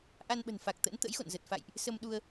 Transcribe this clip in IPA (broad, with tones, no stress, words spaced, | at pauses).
ʔa˧nɓə̤˨˩nfa˨˩k̚ t̪ə̰˧˥n t̪ə̰˧˥jxo̰˧˨nzə˨˩t̚ fa̰˧˨jʔ | sə˧mɗu˧ə̯